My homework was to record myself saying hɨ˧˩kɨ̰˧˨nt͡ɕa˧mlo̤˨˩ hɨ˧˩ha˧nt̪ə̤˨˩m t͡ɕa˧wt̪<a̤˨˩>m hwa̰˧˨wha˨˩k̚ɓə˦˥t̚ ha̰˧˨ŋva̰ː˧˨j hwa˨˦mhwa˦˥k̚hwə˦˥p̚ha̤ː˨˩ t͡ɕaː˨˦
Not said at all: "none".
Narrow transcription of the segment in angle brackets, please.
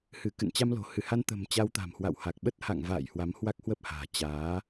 a̤˨˩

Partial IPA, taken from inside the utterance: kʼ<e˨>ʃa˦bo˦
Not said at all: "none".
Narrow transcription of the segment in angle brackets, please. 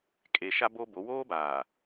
e˨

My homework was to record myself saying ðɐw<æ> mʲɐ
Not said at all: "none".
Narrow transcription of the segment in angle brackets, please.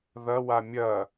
a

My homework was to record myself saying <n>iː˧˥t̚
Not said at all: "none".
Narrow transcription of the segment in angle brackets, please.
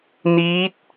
n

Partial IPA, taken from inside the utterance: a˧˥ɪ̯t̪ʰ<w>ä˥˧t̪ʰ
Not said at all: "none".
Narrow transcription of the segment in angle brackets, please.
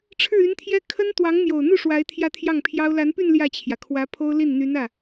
j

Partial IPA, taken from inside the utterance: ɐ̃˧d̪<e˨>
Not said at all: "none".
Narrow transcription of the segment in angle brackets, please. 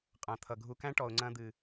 ɨ˨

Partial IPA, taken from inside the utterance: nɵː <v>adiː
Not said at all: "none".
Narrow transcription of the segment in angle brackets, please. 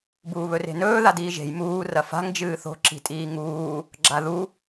ð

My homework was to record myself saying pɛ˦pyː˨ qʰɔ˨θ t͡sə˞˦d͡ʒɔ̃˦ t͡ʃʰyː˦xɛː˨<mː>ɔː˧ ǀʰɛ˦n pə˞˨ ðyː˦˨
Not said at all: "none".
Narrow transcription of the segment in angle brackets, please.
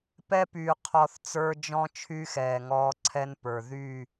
ŋ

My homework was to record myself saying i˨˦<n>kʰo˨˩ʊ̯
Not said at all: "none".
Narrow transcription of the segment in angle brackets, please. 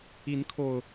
n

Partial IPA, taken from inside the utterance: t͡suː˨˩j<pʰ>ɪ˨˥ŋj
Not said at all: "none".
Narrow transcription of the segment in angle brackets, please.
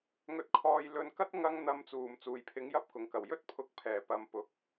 pʰ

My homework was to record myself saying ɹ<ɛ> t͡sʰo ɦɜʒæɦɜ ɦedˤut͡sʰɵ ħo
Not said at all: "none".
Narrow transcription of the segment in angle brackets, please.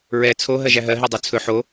ɛ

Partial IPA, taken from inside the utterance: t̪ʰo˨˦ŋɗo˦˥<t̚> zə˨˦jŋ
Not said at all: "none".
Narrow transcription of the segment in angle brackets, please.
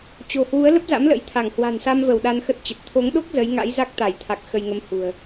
k̚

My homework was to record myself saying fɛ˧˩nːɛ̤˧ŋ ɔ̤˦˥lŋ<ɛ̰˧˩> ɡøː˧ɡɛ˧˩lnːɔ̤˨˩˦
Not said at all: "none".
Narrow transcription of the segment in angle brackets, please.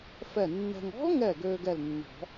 ɛ˧˩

